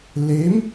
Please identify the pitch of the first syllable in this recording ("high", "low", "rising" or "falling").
rising